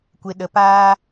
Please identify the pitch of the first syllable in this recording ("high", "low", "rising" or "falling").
low